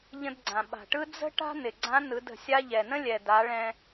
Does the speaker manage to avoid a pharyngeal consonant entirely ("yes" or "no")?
yes